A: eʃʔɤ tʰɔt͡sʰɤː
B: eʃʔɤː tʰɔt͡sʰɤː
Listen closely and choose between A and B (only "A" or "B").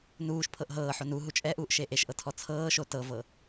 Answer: A